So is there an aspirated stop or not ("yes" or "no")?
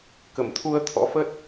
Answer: yes